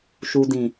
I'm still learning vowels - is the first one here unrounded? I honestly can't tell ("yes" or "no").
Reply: no